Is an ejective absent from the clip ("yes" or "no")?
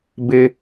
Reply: yes